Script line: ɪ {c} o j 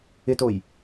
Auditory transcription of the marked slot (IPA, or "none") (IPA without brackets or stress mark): t